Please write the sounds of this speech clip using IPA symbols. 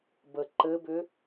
bə ǃɘbʏ

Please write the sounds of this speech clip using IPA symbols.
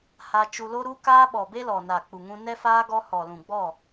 ha˧ t͡ʃu˧lo˦ɾu˦kaː˦ ɓɔ˨be˦lɔ˨ na˨k͡pu˨ŋũ˧ nɛ˦faː˦ ɡɔ˧ hɔ˨lũ˨ɡ͡bɔ˦˨

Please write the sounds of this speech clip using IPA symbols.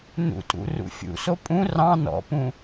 nṵtʼṵrṵ fʲṵso pʼũ rɑ̃ nɔ̰pũ

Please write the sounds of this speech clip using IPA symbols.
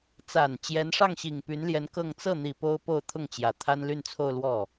t͡sa˨˩n t͡ɕjɛ˧˥nʂɑ˥˩ŋɕi˨˩ŋ py˧˥nljɛ˧˥n kɤ˥˧ŋ t͡sɤ˥˩n̪i˨˩ po˥ʊ̯po˥˧ʊ̯t̪ʰʊ˥˩ŋt͡ɕjä˨˩ t̪ʰa˥nly˥˧nt͡sʰo˥˧ʊ̯ lwɔ˥˩

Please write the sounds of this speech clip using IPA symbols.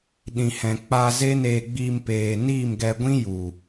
ɗĩ˨hɛ̃˨ k͡paː˧ze˦neː˧ɡ͡biː˧m peː˨ niː˦˨mɡɛ˧ ɡʷĩ˦ ju˨

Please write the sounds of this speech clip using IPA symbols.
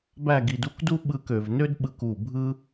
bæ˥˧ɡi˧du˥kdu˥ ɓɯ˥˧kø˩˧v nø˥dɓɯ˧ku˧˩ bʱɯ˥

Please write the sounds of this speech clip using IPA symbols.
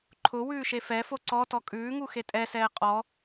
ǃʰʊ wʉːʃefɛfo ǀɔ tɔkʼʉːŋu xetʼɛsɛː qʼɔ

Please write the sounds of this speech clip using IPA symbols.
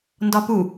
ndɒpu

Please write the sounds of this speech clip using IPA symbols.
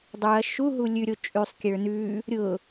dˤuɐ̯ ʃuɦu lʲʉɾʲo t͡ʃʼʉsˤkʲə˞ nʉ | ɾʲʊ

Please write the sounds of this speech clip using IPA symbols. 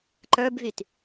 ǃə˞bvyt

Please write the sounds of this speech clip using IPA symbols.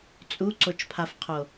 t͡sʼuǀot͡ʃpʰafqʰo

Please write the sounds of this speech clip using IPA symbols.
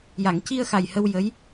ja˨˩˨ŋci˧ə̯xa˨˩j hə˧wjə˧˥j

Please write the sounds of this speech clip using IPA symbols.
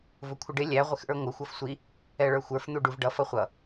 vʊkʷʰəɖɪ lʲæ ʁʷɪxʔə˞ŋʷə xʷʌfsʷi | ɛɭə˞xʷə˞f n̪uɖuvɖʌ fʌχʷʌ

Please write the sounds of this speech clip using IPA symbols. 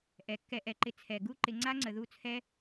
ʔɛ˨kːɛ˧ʔɛ˨ǃɪ˧ t͡sʰɛ˨ɡu˦ǃɪ˧ ŋ͡ǀa˦ŋ͡ǀə˨ðu˦˨t͡sʰɛ˦

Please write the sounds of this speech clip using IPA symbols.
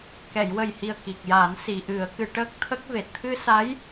kɛ˨˩˨jwə˨˩jhi˨˩ə̯ ki˨˩k̚ja˨˩˦n si˨˩˨ʔɨ˨˩˦ə̯kɨ˨˩˦ ʈəː˦˥k̚t̪ʰə˦˥k̚ve˨˩t̚ t̪ʰɨ˧sa˧˥j

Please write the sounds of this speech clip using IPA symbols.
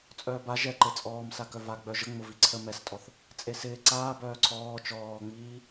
t͡sʼœːba ʒɛǃe t͡sʼɔːmsa kœva ɡ͡bœʒə ŋ͡mʊviǀʰə mɛstʼɔθ | t͡sʼesɪː ǀaː bœːǀʰɔː t͡ʃɔːŋ͡miː

